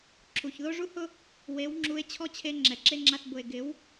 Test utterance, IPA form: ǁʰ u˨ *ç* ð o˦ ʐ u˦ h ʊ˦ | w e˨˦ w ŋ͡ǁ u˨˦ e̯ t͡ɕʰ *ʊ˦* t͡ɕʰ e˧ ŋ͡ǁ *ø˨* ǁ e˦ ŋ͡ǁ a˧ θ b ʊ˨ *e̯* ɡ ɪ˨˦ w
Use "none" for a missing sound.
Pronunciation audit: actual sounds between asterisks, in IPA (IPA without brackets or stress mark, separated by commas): ç, ɔ˦, ɛ˨, e̯